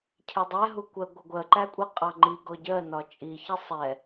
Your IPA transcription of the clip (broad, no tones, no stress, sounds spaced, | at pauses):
cʰ ɛ dˤ æ ɦ u kʷ ɜ ɡʷ ʌ ɡʷ ɜ ǃ æ kʷʼ æ qʼ ɑ ŋ͡ǃ i ɡ ɔ ɟ ɜ n ɒ t͡ʃʼ i ç i sˤ ɛ